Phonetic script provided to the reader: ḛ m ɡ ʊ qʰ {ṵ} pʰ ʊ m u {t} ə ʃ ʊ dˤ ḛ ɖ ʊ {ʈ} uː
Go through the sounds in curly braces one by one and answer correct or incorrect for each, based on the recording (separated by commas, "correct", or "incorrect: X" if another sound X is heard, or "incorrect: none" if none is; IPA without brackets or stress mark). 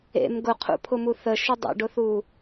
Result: correct, incorrect: θ, incorrect: θ